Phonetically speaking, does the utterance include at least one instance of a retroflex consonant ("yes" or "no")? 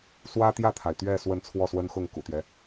no